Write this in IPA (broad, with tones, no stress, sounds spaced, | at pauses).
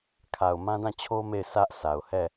kʰ a˨ ʊ̯ m ã˦ d ã˦˨ t͡ɕʰ o˦ m e˦˨ ɪ̯ s ä˦ ʔ s a˨ ʊ̯ h ɛ˦˨